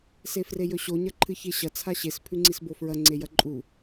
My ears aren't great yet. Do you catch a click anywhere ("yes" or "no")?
yes